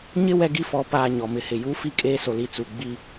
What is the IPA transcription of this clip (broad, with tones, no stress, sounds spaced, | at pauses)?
ɲ ɪ˦ w ɛ˦ ɡ i˦ f ɔ˨˦ p aː˨ ɲ ɔ˨ m ɪ˨˦ h ɪ˨ j u˦ f i˦ kʼ eː˦ s o˨ l i˦ t͡s u˨ ɡ͡b i˦